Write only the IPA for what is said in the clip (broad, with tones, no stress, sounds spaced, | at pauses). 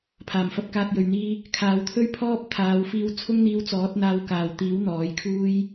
pʰ aː˨˩ m f ɐ˧ p̚ k aː˧ t̚ j ɵ˨ ɥ n̪ iː˥ | kʰ aː˨˧ w t̪ʰ ɵ˥ ɥ pʰ ɔː˥ p̚ t̪ʰ aː˨˧ w f iː˧ w t͡sʰ ʊ˥ ŋ n̪ iː˧ w t͡s ɔː˨˥ t̚ n̪ aː˧ w k aː˨ w t̪ iː˨˥ w n̪ ɔː˨˥ j kʰ uː˥ j